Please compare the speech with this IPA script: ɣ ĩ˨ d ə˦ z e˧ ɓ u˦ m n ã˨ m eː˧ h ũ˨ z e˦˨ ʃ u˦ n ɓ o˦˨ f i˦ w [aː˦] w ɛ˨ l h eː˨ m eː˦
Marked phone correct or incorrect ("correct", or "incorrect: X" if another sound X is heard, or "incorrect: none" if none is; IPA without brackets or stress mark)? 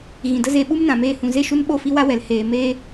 incorrect: a˦